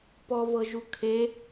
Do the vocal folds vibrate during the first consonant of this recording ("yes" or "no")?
no